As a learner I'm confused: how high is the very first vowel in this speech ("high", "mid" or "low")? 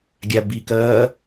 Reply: low